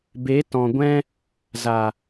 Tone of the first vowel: rising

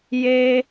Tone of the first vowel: high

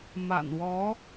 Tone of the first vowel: low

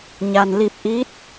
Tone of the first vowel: low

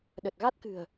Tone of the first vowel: low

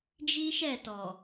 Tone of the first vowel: high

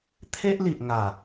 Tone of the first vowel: high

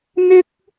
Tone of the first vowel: high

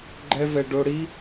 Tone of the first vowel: high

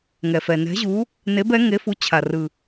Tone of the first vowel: low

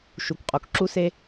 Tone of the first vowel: low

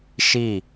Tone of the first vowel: falling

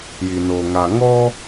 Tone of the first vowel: low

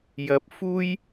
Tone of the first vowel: rising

